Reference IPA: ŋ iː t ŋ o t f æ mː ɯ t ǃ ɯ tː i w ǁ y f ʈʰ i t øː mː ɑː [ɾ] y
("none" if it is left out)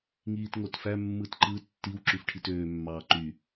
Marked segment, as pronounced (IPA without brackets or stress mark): ǃ